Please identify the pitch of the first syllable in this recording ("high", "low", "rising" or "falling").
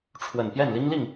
low